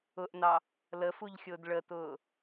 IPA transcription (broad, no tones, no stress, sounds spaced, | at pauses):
ʊ ʔ n ɑ | l ə f u ʎ xʲ ʊː d ɭ ə t ʊː